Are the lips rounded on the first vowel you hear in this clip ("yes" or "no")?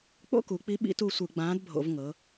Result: yes